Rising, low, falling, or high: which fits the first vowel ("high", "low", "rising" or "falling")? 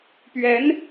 rising